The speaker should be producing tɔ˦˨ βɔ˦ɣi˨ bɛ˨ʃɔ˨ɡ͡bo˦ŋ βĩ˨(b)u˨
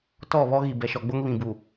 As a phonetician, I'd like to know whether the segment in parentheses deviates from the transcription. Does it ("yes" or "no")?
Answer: no